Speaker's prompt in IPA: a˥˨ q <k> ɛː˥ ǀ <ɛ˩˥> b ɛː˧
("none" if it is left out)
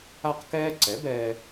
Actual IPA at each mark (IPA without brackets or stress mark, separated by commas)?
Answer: k, ɛ˩˥